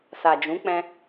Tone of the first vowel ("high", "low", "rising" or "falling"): low